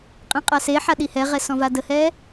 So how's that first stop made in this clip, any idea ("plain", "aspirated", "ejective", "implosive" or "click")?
ejective